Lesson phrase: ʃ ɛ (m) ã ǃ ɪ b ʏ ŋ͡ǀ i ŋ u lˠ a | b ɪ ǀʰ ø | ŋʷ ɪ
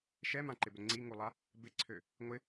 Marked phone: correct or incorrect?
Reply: correct